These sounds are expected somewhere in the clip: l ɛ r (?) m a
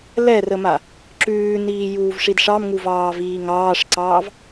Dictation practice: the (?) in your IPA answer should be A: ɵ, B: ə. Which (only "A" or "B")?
B